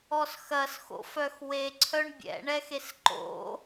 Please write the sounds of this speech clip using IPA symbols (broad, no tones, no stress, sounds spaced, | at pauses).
ɔ s x ɐ s x o̰ f œ x w e ǀʰ œ ɳ bʲ ɛ̰ ɳ ɛ x e s ǃ o̰